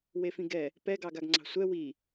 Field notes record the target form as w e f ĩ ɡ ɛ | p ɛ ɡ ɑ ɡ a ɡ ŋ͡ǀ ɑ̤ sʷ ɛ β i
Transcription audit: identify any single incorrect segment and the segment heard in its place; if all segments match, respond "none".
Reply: β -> w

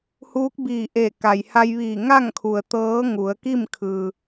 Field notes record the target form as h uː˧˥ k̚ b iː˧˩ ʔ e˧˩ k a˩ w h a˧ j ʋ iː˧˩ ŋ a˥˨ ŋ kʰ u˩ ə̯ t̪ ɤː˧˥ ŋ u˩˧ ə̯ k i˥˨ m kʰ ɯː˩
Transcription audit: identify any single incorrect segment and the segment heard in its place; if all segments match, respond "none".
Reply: w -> j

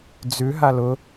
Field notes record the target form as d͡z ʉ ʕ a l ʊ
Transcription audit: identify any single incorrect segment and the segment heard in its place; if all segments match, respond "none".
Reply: ʕ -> ɦ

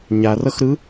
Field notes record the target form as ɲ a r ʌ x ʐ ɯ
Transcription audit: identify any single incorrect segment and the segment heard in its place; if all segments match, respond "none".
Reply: ʐ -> ɾ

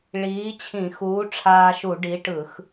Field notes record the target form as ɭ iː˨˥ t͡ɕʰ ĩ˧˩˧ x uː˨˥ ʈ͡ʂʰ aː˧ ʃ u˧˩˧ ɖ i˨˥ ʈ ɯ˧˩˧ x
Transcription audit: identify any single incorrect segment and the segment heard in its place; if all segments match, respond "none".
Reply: none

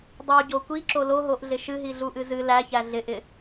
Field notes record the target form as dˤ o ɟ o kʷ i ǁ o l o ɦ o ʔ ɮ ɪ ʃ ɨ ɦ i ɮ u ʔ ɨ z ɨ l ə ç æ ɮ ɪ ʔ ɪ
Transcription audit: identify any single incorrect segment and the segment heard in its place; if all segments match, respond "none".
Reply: ə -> æ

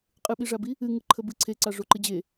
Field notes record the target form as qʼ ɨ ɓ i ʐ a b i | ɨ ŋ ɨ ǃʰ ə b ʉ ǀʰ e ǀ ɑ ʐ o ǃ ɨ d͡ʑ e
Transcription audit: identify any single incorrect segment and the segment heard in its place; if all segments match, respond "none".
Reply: ʉ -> ɨ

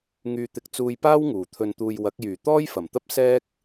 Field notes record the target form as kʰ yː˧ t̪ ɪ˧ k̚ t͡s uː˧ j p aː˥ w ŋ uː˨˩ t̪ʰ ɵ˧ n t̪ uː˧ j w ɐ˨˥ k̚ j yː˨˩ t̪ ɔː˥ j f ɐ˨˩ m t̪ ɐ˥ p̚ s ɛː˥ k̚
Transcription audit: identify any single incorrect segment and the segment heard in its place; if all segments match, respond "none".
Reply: kʰ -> ŋ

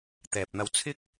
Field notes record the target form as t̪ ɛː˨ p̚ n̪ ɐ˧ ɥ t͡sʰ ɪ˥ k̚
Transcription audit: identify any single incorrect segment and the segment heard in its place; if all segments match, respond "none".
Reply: ɥ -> w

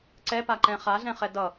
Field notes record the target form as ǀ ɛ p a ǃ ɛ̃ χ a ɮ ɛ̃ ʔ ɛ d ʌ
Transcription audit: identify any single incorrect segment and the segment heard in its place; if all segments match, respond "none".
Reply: ʔ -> χ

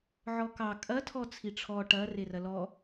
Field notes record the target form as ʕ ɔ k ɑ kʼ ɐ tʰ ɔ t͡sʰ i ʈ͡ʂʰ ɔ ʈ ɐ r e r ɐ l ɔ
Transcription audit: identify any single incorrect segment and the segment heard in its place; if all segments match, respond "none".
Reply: none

